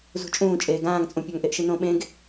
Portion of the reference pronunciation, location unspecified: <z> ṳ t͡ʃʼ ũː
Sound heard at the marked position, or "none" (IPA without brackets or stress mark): z